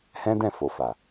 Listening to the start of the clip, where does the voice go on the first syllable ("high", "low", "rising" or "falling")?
high